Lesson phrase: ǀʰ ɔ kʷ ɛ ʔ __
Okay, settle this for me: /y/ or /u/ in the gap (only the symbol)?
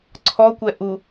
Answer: u